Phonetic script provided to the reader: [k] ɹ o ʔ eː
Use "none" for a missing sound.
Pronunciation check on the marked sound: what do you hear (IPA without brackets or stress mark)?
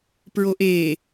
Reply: p